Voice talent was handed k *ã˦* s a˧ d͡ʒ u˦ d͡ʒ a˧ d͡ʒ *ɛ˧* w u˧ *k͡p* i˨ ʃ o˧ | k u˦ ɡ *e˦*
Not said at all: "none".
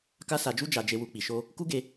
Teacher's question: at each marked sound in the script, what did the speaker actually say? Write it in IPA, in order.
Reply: a˦, e˧, k͡p, e˧

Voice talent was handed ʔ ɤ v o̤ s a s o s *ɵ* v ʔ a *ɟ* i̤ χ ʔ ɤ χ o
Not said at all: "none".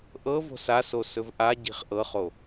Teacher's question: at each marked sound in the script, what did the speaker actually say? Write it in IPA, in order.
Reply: ɵ, ɟ

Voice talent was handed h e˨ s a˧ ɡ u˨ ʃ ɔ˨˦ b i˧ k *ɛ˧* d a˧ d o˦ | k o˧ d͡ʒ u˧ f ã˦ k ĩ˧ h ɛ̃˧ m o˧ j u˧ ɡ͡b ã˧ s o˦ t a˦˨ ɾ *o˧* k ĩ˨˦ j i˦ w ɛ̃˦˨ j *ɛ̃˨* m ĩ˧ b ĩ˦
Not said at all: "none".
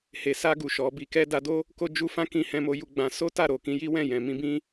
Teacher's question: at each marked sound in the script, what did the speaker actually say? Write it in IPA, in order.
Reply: ɛ˧, o˨, ɛ̃˨

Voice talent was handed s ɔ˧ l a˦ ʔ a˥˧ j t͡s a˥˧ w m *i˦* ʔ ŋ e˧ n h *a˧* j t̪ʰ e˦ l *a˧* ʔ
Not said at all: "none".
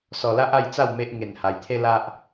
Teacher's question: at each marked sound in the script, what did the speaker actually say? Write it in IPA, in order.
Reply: e˦, a˧, a˦

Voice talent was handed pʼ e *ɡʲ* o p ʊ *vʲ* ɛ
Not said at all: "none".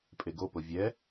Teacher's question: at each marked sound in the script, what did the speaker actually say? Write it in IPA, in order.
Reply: ɡ, vʲ

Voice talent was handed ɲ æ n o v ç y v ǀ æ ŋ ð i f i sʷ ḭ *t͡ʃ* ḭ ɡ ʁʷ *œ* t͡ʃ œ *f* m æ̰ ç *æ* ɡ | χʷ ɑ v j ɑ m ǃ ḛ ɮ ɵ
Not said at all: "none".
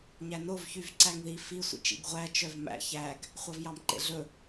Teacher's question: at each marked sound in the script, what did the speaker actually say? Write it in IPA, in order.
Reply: t͡ʃ, æ, v, æ

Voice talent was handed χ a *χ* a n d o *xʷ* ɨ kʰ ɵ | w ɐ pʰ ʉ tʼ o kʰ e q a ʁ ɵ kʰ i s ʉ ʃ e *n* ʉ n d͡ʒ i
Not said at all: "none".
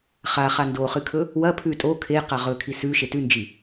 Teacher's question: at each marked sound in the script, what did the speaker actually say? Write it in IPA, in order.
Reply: χ, χ, t

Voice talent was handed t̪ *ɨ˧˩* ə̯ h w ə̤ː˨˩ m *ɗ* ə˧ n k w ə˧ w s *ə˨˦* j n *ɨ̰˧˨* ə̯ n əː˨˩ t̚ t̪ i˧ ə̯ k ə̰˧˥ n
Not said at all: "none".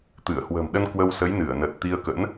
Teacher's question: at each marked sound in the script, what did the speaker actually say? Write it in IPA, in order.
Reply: ɨ˧˩, ɗ, ə˨˦, ɨ˧˩

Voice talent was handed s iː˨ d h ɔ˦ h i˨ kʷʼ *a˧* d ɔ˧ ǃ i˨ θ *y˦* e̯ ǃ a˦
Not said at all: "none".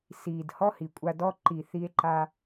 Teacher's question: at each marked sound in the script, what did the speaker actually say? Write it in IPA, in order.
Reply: a˧, i˦

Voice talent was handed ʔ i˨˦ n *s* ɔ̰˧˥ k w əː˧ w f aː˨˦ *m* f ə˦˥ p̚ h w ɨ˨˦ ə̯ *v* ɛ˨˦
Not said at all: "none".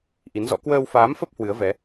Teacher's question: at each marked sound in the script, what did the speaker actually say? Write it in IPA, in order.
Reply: z, m, v

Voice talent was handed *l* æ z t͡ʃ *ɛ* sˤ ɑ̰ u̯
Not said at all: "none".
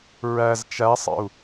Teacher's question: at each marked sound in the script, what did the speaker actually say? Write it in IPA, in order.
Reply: ɹ, æ

